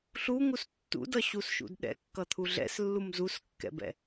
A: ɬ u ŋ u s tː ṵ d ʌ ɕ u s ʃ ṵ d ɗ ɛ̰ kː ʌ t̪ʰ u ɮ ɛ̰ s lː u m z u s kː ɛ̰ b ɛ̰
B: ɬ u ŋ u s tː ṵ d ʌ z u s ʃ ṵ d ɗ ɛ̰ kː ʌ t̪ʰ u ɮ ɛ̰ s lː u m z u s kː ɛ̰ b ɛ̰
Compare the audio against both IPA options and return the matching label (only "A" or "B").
A